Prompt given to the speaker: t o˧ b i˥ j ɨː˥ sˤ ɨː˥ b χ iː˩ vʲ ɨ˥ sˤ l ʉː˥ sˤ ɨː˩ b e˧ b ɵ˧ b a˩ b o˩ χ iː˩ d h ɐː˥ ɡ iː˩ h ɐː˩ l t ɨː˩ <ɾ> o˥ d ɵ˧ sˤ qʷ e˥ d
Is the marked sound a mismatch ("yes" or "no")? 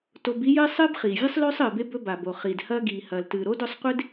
no